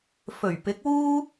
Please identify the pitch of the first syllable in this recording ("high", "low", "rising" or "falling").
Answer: low